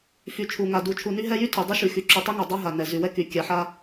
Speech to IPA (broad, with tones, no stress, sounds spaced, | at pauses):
f y˨ t͡ʃʰ u˨ ŋ a˨ d u˨ t͡ʃʰ u˨ n y˦ ɦ ɛ˦ j y˦ tʰ y˨ dˤ y˦ ʃ y˨ x y˨ ǁ y˨ tˤ y˦ ŋ a˨ dˤ a˦ ɦ a˨ n ɛ˨ z y˨ w ɛ˦ k y˨ kʲ a˨˦ ħ a˦